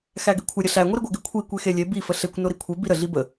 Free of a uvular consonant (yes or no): yes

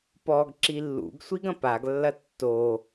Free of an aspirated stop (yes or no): yes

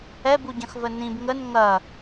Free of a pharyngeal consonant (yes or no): yes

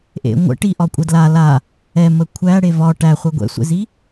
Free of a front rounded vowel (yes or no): yes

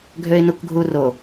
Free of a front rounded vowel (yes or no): no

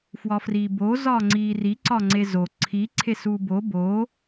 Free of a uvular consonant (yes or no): yes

